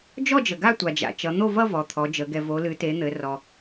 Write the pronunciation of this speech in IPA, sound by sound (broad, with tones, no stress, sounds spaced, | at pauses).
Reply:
d͡ʒ ɔ˥˧ d͡ʒ ə˩ ɡ a˥˧ tʷ a˩ d͡ʒ a̰˩ t͡ʃ ʌ˩˧ n̪ o˥˧ v ʌ˥˧ v ɔ˩˧ t̪ʰ ɔ˩˧ d͡ʒ ə˩˧ ɡ ɛ˩ v o˩˧ l ɨ˩˧ t e˩˧ n̪ ɘ˩˧ r ɔ˩